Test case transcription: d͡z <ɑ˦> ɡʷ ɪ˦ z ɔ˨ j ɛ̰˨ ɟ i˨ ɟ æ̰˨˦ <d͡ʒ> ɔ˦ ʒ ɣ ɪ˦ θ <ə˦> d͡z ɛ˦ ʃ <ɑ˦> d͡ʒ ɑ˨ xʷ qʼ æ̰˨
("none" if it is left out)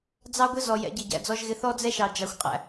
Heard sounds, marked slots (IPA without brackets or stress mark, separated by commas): ɑ˦, d͡z, ɔ˦, ɑ˨